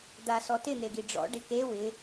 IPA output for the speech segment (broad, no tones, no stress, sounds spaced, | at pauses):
d̪ a s ɔ t ɪ n̪ e ɡ i ɖ͡ʐ ɔ̰ ɖ ɪ k e w ɪ